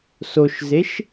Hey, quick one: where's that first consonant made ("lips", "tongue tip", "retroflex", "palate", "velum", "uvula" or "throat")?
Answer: tongue tip